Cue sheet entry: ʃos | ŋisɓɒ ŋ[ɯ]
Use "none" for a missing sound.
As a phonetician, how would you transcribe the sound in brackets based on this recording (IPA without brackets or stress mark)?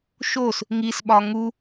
u